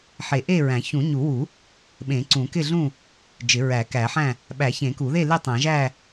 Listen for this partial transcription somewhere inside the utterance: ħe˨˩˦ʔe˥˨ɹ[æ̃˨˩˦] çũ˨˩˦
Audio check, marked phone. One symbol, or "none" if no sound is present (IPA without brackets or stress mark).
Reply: æ̃˨˩˦